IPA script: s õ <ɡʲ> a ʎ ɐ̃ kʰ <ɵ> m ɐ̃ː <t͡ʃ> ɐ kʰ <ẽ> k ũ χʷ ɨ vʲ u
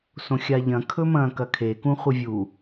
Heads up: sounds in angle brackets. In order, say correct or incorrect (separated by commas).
incorrect, correct, incorrect, incorrect